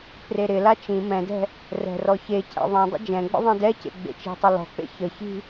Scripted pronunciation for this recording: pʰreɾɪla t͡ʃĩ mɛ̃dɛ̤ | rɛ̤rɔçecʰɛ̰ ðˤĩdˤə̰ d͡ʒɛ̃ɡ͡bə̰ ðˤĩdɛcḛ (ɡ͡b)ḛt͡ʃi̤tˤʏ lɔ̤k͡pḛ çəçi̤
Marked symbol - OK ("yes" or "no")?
yes